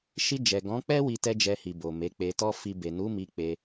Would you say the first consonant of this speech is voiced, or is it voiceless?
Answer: voiceless